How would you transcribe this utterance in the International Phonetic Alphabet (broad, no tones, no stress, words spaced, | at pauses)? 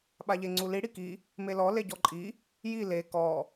ɓaʎeŋ͡ǀuli ɽiki | melɔ leɟɔǃʼi | ji le kɔ